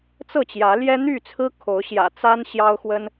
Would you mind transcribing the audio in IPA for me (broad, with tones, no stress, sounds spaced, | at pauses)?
t͡s ɤ˥˨ t͡ɕ j ä˨˦ l j ɛ˦ n̪ y˥˨ t͡sʰ ɹ̩˦ kʰ o˨˦ ʊ̯ ɕ j ä̰˨˩ t͡s a˦ n ɕ j ɑ˦ ʊ̯ x w ə˦ n